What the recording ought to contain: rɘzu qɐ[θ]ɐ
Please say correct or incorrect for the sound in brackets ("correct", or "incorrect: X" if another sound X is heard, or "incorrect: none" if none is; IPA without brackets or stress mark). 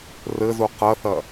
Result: correct